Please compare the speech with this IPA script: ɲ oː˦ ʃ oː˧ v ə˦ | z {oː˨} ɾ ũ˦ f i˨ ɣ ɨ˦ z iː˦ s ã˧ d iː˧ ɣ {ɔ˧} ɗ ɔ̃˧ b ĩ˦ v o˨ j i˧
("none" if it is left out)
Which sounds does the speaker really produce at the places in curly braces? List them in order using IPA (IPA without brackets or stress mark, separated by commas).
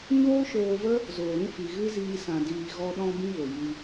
oː˨, ɔ˧